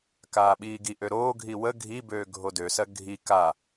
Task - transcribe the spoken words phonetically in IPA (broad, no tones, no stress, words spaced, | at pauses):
kaːɓiːɡiʔø ɾoːɡʱi wə ɡʱibøː ɡʱodøsɜ ɡʱi ka